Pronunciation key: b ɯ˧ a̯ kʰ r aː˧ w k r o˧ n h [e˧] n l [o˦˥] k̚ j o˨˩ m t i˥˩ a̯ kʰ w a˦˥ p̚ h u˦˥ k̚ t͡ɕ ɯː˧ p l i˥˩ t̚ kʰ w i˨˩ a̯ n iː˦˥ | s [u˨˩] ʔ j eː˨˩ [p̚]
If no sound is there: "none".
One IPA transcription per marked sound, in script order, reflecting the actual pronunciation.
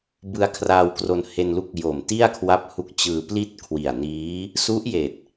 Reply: e˧, u˦˥, u˦˥, t̚

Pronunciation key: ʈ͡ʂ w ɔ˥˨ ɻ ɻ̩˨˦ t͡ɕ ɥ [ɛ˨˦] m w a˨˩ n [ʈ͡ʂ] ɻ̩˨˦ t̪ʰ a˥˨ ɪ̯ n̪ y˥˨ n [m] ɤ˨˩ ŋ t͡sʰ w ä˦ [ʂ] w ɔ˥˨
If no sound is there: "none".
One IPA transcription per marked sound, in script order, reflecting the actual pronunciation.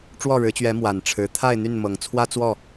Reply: ɛ˨˦, ʈ͡ʂʰ, m, t͡s

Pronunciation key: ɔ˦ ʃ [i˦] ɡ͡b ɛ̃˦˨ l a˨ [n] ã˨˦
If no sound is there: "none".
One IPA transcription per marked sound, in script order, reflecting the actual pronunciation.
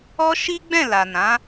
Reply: i˦, n

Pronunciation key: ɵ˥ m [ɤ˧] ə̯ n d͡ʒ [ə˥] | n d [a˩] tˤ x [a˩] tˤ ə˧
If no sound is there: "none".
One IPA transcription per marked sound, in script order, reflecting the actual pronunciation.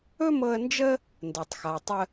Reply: ɤ˧, ə˥, ə˩, a˩

